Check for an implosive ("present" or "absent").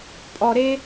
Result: absent